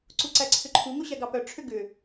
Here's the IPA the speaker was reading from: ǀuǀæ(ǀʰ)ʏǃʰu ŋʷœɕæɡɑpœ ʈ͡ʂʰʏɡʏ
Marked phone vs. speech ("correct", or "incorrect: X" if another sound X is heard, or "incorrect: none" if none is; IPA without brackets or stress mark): correct